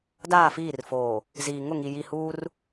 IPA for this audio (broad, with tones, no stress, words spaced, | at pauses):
daː˦˨fiː˦˨rfoː˨ | ziː˨ ŋʊ˦˨ŋi˨ ji˨huː˦r